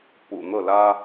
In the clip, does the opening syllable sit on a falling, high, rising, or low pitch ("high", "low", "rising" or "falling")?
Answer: low